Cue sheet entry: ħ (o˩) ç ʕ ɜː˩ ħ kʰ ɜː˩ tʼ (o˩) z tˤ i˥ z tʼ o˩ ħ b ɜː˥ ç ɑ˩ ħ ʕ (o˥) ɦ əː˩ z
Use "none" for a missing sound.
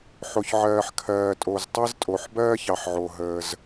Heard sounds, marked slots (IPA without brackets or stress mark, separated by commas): o˩, o˩, o˩